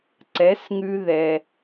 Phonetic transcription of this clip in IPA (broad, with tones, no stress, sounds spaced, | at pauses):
ǀ ɛ˩˥ s ŋ ʉ˧ ð ɛ˩